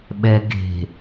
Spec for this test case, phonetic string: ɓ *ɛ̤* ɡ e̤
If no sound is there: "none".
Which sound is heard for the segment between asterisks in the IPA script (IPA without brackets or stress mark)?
ɛ